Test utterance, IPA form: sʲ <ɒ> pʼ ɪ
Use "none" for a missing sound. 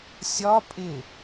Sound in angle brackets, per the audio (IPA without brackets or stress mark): ɒ